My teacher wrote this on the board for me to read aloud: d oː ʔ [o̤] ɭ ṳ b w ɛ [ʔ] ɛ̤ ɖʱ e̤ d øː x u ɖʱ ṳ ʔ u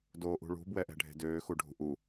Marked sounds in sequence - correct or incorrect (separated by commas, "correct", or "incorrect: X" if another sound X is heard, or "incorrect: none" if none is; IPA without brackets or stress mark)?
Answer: incorrect: ṳ, correct